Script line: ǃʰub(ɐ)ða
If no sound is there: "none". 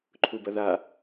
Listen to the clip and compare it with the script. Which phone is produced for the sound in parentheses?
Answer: ɐ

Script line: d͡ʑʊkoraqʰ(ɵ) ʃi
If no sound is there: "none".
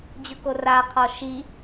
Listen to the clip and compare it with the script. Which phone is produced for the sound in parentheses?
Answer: ɔ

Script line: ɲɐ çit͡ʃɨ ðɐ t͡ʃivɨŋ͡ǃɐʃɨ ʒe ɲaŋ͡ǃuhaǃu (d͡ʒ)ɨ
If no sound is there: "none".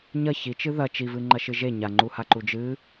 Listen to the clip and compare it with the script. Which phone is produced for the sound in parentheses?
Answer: d͡ʒ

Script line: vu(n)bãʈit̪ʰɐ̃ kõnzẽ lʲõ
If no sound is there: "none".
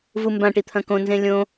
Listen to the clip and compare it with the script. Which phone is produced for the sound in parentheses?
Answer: m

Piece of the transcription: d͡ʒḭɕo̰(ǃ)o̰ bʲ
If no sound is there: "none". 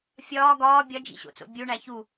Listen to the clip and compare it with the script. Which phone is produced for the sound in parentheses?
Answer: t͡s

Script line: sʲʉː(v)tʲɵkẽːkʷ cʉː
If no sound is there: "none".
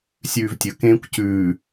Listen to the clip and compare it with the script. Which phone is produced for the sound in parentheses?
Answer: v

